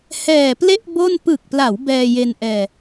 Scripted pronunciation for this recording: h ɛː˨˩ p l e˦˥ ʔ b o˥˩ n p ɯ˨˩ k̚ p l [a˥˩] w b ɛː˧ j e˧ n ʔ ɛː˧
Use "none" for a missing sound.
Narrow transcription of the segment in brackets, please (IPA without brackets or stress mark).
a˩˦